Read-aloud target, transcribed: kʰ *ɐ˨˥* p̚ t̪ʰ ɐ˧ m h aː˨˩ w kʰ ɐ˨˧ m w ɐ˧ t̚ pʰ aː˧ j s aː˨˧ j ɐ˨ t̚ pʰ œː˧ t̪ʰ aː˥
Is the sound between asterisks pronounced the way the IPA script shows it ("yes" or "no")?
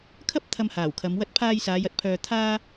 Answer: no